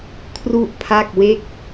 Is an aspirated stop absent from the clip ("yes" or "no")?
no